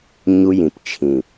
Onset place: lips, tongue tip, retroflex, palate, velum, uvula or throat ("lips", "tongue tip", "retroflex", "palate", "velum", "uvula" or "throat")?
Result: palate